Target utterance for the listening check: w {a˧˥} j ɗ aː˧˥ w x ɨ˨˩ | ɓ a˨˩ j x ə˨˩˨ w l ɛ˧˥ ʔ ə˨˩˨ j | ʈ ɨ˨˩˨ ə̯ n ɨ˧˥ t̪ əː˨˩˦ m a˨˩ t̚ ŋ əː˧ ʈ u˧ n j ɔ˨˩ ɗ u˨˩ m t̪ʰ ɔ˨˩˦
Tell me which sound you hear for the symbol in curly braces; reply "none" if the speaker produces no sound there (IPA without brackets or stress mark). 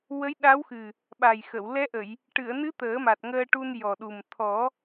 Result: ə˧˥